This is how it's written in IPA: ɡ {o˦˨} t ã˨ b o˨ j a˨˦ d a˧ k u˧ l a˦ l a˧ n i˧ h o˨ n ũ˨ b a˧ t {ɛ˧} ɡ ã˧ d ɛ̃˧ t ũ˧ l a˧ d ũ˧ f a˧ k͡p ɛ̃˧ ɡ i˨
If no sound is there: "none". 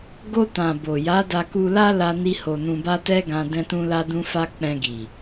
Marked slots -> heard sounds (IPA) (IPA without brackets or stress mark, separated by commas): o˧, ɛ˦